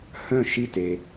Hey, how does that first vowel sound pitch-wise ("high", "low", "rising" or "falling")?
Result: falling